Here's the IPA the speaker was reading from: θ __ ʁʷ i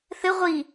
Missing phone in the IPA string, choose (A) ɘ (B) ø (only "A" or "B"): A